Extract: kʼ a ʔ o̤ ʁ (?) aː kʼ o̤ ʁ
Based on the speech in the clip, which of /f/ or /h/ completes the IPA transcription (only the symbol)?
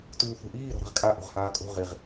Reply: h